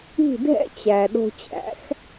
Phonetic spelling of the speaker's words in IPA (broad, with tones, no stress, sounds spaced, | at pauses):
i̤˥˩ dʱ ɛ̰˥ t͡ɕ æ˩ ɗ o̤˧ t͡ɕ æ̰˩˥ x